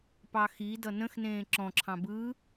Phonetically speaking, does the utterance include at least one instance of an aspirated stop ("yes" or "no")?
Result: yes